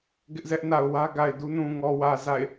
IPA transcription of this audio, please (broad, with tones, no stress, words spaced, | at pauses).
ɡɪ˦ʔzɛ˦ʔna˨ʊ̯ wä˦ɡa˨ɪ̯du˦nũ˨ ŋɔ˨wä˨ za̰˦˨ɪ̯